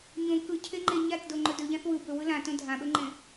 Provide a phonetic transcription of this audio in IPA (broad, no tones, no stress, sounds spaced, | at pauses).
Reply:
ɲ õ k ɯ cʰ e ŋ͡ǃ e ɲ a t d o ŋ͡ǃ ɵ d ɵ ʎ ã θ w ɯ b ɵ w ɯ l ã t õ dʱ ã ɓ ɵ ŋ͡ǃ ẽ